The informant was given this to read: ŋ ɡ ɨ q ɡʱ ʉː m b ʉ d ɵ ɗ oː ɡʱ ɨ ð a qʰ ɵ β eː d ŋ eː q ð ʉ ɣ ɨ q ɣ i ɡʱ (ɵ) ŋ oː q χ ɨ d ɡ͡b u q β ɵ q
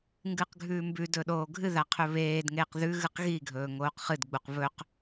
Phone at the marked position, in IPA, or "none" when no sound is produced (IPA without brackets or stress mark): ɵː